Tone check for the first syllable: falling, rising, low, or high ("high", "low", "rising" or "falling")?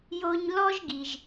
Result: high